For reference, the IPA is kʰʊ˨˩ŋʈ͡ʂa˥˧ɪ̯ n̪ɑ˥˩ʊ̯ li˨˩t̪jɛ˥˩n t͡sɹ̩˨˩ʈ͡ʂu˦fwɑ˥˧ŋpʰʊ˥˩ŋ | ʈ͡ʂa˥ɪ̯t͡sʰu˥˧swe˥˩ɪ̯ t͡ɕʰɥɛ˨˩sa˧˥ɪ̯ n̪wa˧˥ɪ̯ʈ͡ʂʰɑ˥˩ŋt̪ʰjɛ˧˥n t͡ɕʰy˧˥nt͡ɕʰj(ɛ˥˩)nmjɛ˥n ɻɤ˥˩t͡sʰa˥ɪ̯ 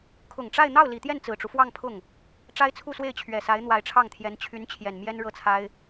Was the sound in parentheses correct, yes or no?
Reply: no